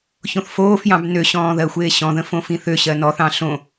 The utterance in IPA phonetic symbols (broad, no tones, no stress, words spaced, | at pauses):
çõθfoːfjɑ̃b nøɕɔ̃ː ðɜxʷeːɕɔ̃ðə̃ fõfĩθøɕɜ nɔθɑ̃ ɬõ